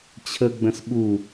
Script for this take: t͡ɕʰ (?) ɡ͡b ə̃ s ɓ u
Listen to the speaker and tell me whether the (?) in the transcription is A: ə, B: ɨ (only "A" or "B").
A